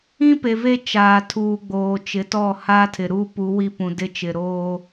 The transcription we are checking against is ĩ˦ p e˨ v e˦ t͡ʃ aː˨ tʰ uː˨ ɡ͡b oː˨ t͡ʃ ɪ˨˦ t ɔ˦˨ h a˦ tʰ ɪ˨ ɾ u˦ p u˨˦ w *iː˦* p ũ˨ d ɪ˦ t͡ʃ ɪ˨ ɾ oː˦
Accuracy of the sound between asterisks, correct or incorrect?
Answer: incorrect